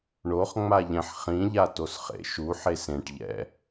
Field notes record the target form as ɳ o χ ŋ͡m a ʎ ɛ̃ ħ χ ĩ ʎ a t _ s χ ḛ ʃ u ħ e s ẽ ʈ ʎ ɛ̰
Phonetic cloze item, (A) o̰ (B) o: B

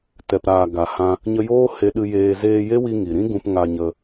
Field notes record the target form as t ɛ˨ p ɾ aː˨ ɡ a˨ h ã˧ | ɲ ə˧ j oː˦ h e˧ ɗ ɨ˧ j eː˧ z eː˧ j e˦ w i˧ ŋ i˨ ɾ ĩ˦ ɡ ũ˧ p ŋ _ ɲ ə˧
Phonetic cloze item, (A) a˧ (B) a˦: A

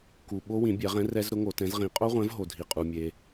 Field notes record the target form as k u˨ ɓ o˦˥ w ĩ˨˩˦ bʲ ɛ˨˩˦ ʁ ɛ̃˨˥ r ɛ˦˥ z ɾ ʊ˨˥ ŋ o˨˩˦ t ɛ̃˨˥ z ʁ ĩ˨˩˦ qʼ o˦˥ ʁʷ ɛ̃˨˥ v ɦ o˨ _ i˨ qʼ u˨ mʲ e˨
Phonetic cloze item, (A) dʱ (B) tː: A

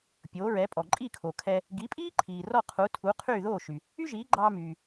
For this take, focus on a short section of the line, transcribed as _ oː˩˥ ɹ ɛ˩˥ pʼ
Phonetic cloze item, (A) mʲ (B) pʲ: B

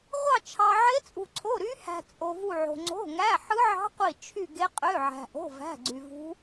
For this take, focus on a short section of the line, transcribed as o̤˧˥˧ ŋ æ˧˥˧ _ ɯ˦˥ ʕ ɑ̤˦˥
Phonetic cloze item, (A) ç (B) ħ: B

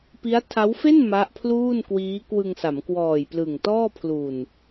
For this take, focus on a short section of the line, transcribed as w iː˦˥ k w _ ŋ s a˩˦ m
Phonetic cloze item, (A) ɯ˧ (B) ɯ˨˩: A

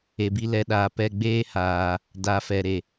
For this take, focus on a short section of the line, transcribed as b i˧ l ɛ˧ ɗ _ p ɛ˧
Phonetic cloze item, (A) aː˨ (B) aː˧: A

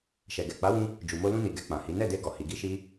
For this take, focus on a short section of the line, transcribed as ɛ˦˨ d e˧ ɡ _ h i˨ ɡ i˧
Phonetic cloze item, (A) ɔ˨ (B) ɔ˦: A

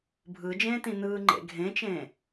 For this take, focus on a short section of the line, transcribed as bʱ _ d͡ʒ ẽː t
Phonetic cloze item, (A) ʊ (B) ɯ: B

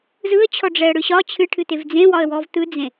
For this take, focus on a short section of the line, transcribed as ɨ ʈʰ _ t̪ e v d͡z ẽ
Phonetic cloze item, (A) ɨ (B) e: A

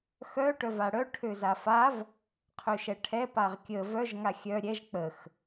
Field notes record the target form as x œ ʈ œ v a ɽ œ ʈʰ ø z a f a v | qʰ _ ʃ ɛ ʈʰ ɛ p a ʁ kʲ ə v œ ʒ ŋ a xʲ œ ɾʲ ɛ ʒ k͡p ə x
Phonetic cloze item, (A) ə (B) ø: B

